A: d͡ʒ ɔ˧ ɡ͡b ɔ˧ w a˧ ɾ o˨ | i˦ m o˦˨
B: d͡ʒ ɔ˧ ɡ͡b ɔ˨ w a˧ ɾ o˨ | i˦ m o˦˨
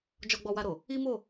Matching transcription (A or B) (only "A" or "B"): A